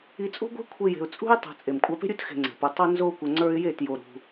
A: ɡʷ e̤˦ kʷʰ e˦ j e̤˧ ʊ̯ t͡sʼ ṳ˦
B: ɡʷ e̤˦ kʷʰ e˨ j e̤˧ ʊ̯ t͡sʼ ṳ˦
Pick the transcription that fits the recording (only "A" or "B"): A